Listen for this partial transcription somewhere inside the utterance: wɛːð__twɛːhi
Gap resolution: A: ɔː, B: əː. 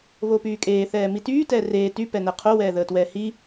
B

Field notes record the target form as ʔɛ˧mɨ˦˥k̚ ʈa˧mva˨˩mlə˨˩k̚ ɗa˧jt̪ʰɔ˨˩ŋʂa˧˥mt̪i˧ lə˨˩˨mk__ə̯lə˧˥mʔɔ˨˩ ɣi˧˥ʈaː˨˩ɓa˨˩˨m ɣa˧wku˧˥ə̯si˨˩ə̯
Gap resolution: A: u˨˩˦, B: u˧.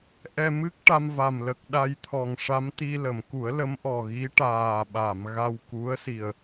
A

